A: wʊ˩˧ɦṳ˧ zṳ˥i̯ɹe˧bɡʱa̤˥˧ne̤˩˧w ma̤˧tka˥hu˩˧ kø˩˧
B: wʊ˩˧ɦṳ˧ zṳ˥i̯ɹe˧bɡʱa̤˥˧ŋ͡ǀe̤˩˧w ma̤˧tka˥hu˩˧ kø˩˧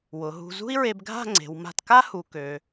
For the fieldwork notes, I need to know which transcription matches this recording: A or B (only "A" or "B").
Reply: B